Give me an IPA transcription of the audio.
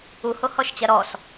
uhohɔʃt͡ɕɐ ɾɔs

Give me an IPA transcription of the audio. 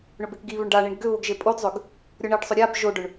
ɳɵbekɡiβʏɳ ɖaɳiɳ ɡʏβoɡ ʒepʼodzˤʏɡ | ɾʲoɳiɖsˤɵ ɾʲab ʒoɖɵɳ

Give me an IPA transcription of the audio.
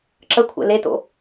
ǁəkʷʰɛ̰ leto̰

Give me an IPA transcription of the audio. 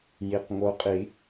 ji˩q ŋo˨˦qʼi˨˩˦

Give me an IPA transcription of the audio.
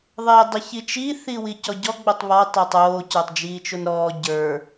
ðˤeːdˤiçit͡ʃi θiwicɔɟɔ ɡ͡botˤβɔ tˤotˤoː cə˞tˤd͡ʒiːt͡ʃonɾɔː ɟə˞

